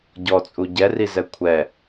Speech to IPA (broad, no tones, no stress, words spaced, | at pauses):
ɟɔt͡sʼu ɟɛrizɛ kʷʰɛ